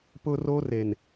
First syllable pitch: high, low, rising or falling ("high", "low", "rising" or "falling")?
high